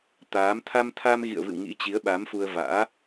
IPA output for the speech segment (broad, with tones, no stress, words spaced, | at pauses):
t̪aː˨˦m t̪ʰa˧mt̪ʰa˧mɣḭ˧˨ə̯vɨ̰˧˨w ŋḭ˧˥t͡ɕi˨˦ə̯ ɓa˨˦mfu˧ə̯ va̰ː˧˥